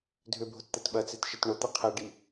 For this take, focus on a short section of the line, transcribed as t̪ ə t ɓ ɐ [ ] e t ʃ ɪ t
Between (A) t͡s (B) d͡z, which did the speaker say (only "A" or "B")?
A